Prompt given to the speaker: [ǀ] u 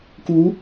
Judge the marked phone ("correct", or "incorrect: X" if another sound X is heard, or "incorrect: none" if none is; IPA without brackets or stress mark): incorrect: k